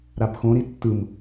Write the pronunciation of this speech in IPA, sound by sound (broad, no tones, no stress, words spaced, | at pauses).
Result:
ɾabxõɾi tːɯm